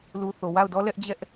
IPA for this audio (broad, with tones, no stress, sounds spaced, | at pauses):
l u˨ θ o˨ w a˦˨ ʊ̯ d ɔ˦ l ɛ˦ ʔ d͡ʑ ɛ˦ ʔ